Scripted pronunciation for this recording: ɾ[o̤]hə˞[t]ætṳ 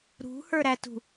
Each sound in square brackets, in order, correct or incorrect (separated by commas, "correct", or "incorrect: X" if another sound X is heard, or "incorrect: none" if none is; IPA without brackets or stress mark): incorrect: ṳ, incorrect: ɾ